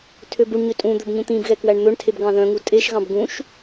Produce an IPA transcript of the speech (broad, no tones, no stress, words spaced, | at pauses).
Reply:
tʰøbuɳɲø tʼũd̪ɵb ɲũt̪ĩbɣɛ kwæɳn̪ɵɳtʰeb ɡɑ̃ðœ̃ŋu tʼeʃɣɑ̃b ɡũʃ